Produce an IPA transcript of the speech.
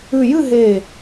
ʉ˨˩ j ɨ˦˨ ɦ e˨˩

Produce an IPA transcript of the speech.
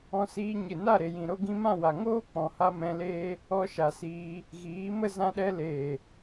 ɔ̃˧ s iː˧ ɲ ɨ˨ n a˦˨ ɾ e˨ j ĩ˨ ɾ o˧ ɡ ĩ˧ m ã˦˨ w a˨ ŋ oː˦ k͡p ɔ̃˨ h a˧ m ɛ̃˧ l eː˦ | ɔ˧ ʃ a˨ s iː˧ | ɣ iː˨˦ m ə˦ z ã˧ ɗ ɛ˧ l eː˨

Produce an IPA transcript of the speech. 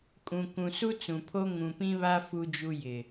kʼ ũ˨ k ũ˨ s u˦ t͡s ũ˨ pʰ o˦ ŋ ũ˨ p ĩ˦ β a˦ f u˦ d͡ʒ u˦ j ɪ˨

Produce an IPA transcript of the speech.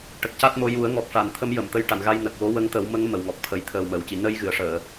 ʈ ə˨˩ k̚ c a˦˥ t̚ m o˧ j u˨˩˦ ə̯ ŋ ɔ˨˩ k̚ ʂ a˨˩˨ n t̪ʰ ə˧˥ m j ə˨˩˨ m t̪ ə˧ j ʈ a˨˩˨ n ɣ a˧ j n ə˨˩ k̚ w o˧˥ w ə˧˥ ŋ t̪ ə˨˩˦ w m ə˧˥ ŋ m ə˨˩˨ w ŋ ɔ˨˩ k̚ t̪ʰ ə˨˩˦ j t̪ʰ əː˨˩ w m əː˨˩˨ w c i˨˩˨ n ə˧ j ɣ ɨ˨˩˨ ə̯ ʂ əː˨˩˨

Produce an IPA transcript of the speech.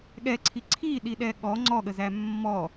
ɠ ɛ ǀʰ i ǀʰ i ɗ i ɗ ɛ ɠ ɔ ŋ͡ǀ ɔ ɠ ə z æ mː ɔ

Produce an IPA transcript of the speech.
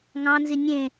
ŋ ɑ̃ n z i nʲ ẽ

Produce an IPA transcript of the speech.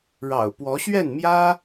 ɻ ɑ̰˨˩ ʊ̯ p w ɔ˧˥ ɕ ɥ ɛ˥˩ n m j ä˥

